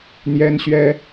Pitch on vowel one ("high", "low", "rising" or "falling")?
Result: high